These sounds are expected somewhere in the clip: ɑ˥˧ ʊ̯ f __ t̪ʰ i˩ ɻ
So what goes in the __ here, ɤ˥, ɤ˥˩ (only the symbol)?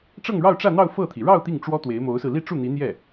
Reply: ɤ˥˩